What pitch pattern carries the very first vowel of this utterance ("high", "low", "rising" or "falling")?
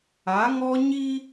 rising